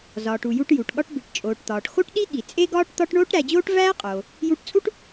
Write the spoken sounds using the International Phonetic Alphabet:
z ɒː˩ ʈ u˩ j u˧ ʈ j u˩ ʈ ɠ ɒ˧ ʈ b i˩ ʈ t͡ʃʼ oː˩ ʈ t̪ ɒː˩ ʈ x o˥ ʈ ɗ i˥ ɠ i˩ t͡sʼ e˥ ɡ ɒː˥ ʈ t̪ ɒ˥ ʈ ɳ oː˥ ʈ ɾ æ˧ d͡ʑ oː˥ ʈ v æː˥ qʼ oː˩ | j u˧ ʈ t͡sʼ u˥ ʈ

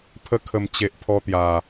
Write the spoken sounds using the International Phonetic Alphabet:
pʰ ə˧ kʰ ə˨˩ m t͡ɕ e˨ ʔ pʰ ɔ˧ t̪ j a˨˩

